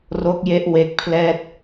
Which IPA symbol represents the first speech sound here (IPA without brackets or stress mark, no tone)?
r